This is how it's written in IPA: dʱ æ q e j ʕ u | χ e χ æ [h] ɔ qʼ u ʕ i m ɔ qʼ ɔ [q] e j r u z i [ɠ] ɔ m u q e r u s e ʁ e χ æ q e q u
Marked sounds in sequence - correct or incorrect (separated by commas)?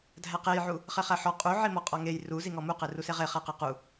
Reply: incorrect, incorrect, incorrect